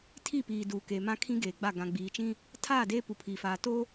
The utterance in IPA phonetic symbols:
tʰi˦˨piː˨ duː˨keː˨mã˦kʰĩ˦ ɡeː˨ɡ͡ba˦˨ ɡã˨ɡ͡biː˨t͡ʃĩ˦ | tʰa˦˨de˦ pu˨pʰiː˨faː˨ to˦

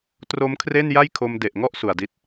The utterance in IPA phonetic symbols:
tro˦˥mkʰre˥˩n ja˥˩jkʰo˧m de˨˩ʔŋɔ˥˩ʔ su˨˩a̯di˦˥t̚

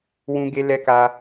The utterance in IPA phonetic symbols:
wũ˧ɡe˧lɛ˧ka˧

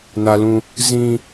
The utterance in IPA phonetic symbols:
na˦lũ˦ | zĩ˦

